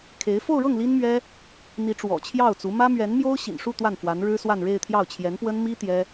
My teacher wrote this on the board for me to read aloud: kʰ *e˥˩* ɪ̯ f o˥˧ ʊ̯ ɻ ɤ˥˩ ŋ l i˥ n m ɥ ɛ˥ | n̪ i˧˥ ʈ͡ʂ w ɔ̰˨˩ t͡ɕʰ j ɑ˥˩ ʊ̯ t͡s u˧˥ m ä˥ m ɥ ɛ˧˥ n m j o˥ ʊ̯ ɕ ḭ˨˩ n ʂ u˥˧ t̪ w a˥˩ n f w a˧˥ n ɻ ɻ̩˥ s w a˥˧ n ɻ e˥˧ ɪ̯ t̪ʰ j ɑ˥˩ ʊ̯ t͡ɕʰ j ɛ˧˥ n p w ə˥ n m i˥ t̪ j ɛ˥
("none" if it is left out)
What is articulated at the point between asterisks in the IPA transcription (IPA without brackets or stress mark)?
e˧˥